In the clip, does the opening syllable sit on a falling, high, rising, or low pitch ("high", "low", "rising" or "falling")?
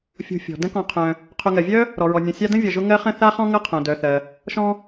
low